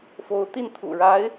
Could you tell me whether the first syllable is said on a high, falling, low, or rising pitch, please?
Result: rising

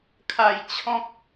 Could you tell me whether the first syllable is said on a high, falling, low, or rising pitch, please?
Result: low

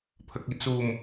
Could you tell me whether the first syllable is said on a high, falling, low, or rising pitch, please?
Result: low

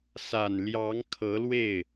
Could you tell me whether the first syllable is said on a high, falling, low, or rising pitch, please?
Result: low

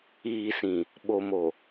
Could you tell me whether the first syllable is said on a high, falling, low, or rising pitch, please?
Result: low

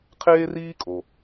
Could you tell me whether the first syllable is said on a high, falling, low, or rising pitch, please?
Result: high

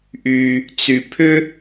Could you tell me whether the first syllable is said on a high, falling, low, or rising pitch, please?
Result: high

